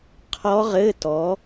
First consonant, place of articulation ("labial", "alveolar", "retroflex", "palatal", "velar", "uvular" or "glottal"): uvular